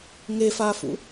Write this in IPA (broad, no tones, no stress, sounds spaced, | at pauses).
ŋ e f aː f ṵ